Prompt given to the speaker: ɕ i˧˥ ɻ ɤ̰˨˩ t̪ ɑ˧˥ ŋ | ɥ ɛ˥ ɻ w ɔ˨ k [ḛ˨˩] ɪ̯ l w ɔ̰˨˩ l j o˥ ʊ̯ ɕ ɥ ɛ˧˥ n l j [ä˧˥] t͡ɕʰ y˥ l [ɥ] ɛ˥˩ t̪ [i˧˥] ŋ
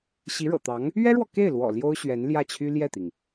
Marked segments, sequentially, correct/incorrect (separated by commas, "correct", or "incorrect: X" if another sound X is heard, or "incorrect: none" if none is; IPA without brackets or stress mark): incorrect: e˥˩, incorrect: ä˥˩, incorrect: j, incorrect: i˩